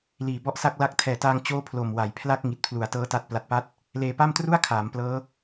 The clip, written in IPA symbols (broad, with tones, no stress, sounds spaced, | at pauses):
l iː˨˩ b ɔ˥˩ ʔ s a˥˩ k̚ l a˦˥ k̚ tʰ ɛː˨˩ t aː˧ ŋ t͡ɕ oː˥˩ pʰ l o˨˩ m w a˩˦ j pʰ l a˥˩ k̚ ŋ i˨˩ t̚ pʰ l u˩˦ a̯ t ɤː˦˥ t a˦˥ t̚ p l a˨˩ t̚ p a˦˥ t̚ | l eː˧ p a˥˩ m t r u˥˩ a̯ kʰ aː˩˦ m p l ɤː˦˥